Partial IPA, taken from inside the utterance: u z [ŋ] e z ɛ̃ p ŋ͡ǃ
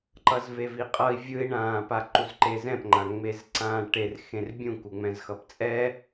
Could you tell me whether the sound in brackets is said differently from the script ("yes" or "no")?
yes